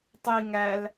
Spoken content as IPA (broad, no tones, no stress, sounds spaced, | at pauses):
tˤ i ŋ æ l